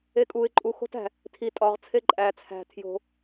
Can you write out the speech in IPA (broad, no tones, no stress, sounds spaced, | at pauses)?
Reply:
e kʼ u ɪ̯ ǃʼ u x o̤ t æ̤ | tʰ i tʼ ɒ ʁ t͡sʰ e ǃʼ æ t͡sʰ æ̤ tʰ j o̤